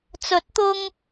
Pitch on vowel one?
rising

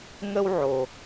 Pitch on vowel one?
high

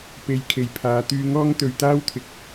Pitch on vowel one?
low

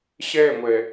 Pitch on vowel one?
falling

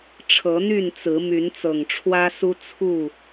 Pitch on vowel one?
rising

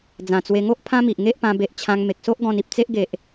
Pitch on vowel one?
low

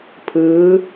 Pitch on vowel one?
rising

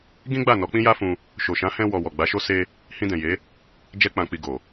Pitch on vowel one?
high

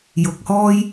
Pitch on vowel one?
rising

